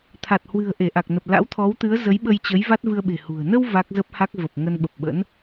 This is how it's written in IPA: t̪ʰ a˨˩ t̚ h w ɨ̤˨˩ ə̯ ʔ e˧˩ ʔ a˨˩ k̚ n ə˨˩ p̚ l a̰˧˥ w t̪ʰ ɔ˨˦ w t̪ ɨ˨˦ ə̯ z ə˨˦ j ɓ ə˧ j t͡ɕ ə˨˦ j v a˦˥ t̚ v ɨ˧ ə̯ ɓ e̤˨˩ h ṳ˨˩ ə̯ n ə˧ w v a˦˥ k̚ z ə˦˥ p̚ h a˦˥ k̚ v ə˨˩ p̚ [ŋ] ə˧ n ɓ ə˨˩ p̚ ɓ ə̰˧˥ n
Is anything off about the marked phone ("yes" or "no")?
no